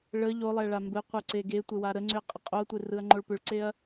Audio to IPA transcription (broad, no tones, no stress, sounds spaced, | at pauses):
ɭ ə ʎ o lˠ ɛ ɭ a m b ɘ qʷ ɛ ǀ e ɡ e tʷ e w a ɾ ə ŋ͡ǀ ʏ ɐ̯ qʼ ə qʼ o ɐ̯ tʷ e r ɯ ɐ̯ ŋ͡ǃ o ɭ p ʏ ɭ ǀ e ɐ̯